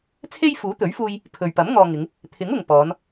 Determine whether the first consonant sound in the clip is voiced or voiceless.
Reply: voiceless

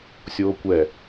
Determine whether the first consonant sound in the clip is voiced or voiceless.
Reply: voiceless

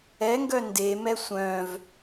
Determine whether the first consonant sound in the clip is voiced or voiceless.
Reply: voiced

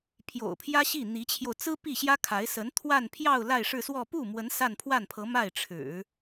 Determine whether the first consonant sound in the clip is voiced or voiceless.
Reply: voiceless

